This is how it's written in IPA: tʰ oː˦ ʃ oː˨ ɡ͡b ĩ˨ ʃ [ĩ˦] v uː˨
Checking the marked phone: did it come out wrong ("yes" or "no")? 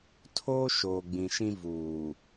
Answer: no